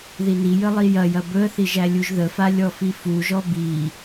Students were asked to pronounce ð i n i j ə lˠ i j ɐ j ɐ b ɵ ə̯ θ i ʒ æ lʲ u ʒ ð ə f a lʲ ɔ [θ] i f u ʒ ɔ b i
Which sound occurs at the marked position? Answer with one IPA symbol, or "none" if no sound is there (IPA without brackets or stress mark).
f